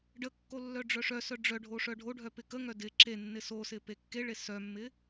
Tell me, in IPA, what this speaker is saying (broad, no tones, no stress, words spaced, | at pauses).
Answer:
ɖəkːo lːœɖ͡ʐœʂœsœ ɖ͡ʐœɖʱo ʂœɖʱoɖʱœ pɪkəŋœ dɪ ǁenːɪ sosɪ pekːeɭe sœmːɪ